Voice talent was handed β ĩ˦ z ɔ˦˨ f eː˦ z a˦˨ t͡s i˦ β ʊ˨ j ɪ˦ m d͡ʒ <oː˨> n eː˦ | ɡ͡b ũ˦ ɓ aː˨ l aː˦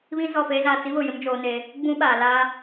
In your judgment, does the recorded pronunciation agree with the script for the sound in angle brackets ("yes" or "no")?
no